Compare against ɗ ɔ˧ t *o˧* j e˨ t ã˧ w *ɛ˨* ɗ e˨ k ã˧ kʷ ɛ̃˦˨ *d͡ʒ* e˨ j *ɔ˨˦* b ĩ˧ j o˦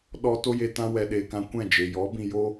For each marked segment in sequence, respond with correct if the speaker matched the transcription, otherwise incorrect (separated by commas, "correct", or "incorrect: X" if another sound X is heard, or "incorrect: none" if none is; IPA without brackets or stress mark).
correct, correct, correct, correct